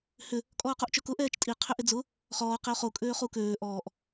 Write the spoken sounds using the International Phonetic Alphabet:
hʏ | kʼɔːqoʔt͡ʃœkʊ ʔɛːt͡ʃtʼi qʰʏʔɪd͡zʊ | χɔːq ɪo̯χo kʼøːχukøː ʔɔːʔ

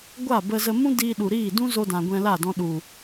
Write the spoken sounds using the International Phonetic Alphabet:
ɡʷa˦˨bə˧zə˧ mũ˦diː˧ɗu˨ ɾiː˦˨dũ˦zo˧dã˨ ɡʷɛ̃˧la˦˨dɔ̃˧ ɗu˨

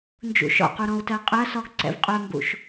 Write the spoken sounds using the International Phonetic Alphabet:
nd͡ʒṵʃɔ̰qu ɾɔ̃u̯tɜqʼɜsɔɡ ǀɛ̰vqʼœmbṵʃ

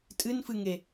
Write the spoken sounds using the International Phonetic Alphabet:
tʼɨnfɨŋe

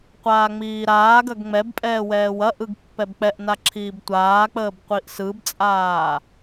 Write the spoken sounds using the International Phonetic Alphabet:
qʷaːŋ͡miːɾaːɡɐɡ ŋ͡mɛbpʼɛː wɛːwɐʔɯɡ pːɛbk͡pɛʔna ǁʰiːbtʷaːk͡pəːb qʷiʔsɯbt͡sʼaː

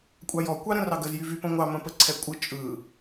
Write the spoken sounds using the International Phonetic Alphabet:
kʷʼɑjɔ kʷɑɾə̃rɑɡəz jyvypə̃ŋʷɑ mə̃pəǀʰɛkʷʼɯ t͡ʃʼɯ

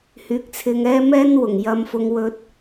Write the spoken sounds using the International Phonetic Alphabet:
hyː˨˥k̚t͡sʰɪ˧ŋɛː˥ mɛː˥nwʊ˨˩ŋjɐ˧mfʊ˧ŋ wɵ˧t̚

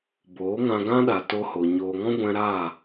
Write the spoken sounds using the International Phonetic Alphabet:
boː˨˦ŋã˧ɡã˦ɗa˨ to˧ho˨ ɲoː˧ ŋɔ̃˦ɡʷɛ̃˧ ɾaː˦˨

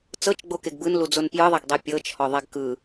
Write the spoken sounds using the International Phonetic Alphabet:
t͡sɤt͡ʃɡ͡bokeɡ bɯnlud͡zon pjɯðˤeɡdˤe pʲɤːt͡ʃ hɔðˤɛɡkɯː

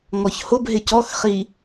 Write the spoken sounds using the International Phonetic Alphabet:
ŋɔçhʊbɦɪ cɔxχi

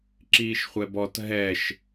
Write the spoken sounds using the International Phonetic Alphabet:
ǁiːʃχʷɛbɔt ɦɛʃ

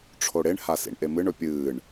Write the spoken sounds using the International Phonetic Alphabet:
ʈ͡ʂʰoɽeɳ hasḭɳʔemɨɳ ɵpʲɨːɳ

